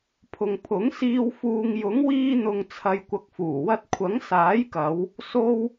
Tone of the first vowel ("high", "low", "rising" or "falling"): low